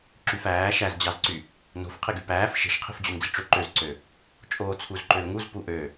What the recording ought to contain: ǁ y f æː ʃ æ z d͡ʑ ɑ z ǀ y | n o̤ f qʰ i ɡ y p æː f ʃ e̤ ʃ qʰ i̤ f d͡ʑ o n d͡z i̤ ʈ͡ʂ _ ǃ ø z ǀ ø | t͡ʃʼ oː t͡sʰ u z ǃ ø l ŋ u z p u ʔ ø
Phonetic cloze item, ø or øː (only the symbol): ø